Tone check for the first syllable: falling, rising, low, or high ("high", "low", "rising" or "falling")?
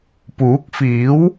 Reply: rising